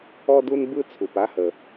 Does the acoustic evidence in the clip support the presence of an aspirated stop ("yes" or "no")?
yes